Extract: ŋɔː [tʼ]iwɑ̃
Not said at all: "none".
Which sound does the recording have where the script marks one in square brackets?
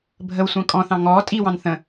tʼ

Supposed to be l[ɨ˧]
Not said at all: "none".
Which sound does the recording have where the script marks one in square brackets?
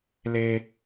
e˧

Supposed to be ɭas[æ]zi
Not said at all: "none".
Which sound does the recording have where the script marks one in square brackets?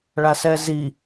ɛ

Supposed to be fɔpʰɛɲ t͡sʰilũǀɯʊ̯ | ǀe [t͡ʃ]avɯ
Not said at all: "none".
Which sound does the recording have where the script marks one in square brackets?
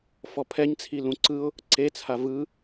t͡sʰ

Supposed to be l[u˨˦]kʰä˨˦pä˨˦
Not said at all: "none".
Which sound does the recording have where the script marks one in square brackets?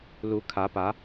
u˨˦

